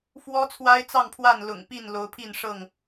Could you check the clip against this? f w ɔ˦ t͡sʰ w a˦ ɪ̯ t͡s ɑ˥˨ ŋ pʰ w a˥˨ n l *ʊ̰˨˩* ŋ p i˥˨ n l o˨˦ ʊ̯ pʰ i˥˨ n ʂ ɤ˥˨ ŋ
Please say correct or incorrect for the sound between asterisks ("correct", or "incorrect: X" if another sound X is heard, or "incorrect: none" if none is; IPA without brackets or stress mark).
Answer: correct